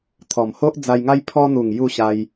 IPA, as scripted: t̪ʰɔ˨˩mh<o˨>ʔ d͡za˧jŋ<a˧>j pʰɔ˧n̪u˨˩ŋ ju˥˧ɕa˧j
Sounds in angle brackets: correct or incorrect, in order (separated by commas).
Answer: incorrect, incorrect